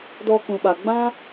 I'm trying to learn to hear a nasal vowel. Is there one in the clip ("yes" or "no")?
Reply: yes